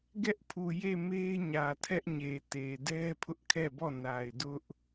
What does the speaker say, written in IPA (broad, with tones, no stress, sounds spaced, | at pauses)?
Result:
ɡ ɛ˦ ʔ pʰ u˨ j e˦˨ m e˦ ɲ ä˨ tʰ ɛ˦ ʔ ɲ e˨ t e˨ d ɛ˦ pʰ ʊ˦ ʔ kʰ ɛ˦˨ b ɔ˦˨ n a˨ ɪ̯ d ʊ˦ ʔ